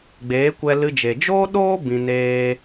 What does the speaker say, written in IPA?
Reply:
ɡ͡b eː˨˦ kʷ ɛ˧ l ɨ˧ d͡ʒ e˨ d͡ʒ oː˦ ɗ oː˦ b ĩ˧ n eː˦

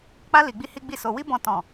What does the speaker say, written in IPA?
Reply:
k͡p a˦ l i˧ ɡ͡b i˦ h i˦ ɡ͡b i˦˨ s o˧ w i˦ b ɔ̃˧ t ɔ̃˨

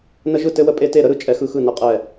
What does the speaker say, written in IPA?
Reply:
n ə˦ ʒ ɯ˥˨ t ɘ˦ w ə˦ pʼ e˦ t e˥˨ ɾ ə˦ ɾ ɯ˥˨ t͡ʃʼ ɛ˦ x ɯ˦ x ɯ˥˨ n ə˥˨ qʼ ɛ˥˨

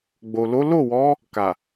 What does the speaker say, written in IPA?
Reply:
ɡ͡b o˨ l o˨˦ l o˦˨ w ɔ˨˦ | k a˨

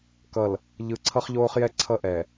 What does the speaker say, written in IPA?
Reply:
k ʌ˨ l | ʎ ɯ˨˦ ǀʰ ʌ˦ χ ʎ oː˦ χ j ɛ˦ ǀʰ ʌ˦˨ ʔ ɛ˨

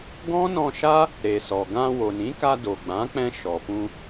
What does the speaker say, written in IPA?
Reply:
ɡ ɔ̃˦ n ɔ̃˧ ʃ a˦ | ɾ e˨ s ɔ˨ ɡ ã˧ w o˨ n ĩ˨˦ k a˧ d o˨ ɡ͡b ã˨˦ k͡p ɛ̃˧ ʃ ɔ˨ f ũ˧

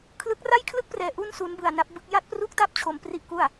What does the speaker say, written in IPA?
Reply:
kʰ l ɯ˦˥ k̚ r a˥˩ j kʰ l ɯ˥˩ k̚ p r ɛː˧ ʔ u˥˩ n s u˦˥ n b ɯ˧ a̯ n a˦˥ p̚ b ɯ˦˥ k̚ j a˥˩ t̚ p r u˥˩ k̚ t a˥˩ p̚ t͡ɕʰ o˧ m p r i˥˩ ʔ k u˥˩ a̯

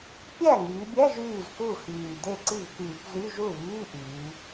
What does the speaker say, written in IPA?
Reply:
pʲ æ˥˩ ŋ yː˩˧ bʲ æ˧˥˧ ʒ yː˥˩ z k u˥˩ x yː˨˩ d e˥˩ ǀ i˥˩ v k yː˧˩˧ p z y˧˥˧ ʒ u˥˩ β iː˧˥˧ ʔ yː˩˧

